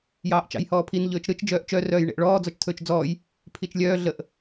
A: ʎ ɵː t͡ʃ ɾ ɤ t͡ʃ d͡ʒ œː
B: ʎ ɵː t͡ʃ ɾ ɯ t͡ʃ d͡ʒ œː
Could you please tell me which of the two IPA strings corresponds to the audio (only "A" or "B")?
B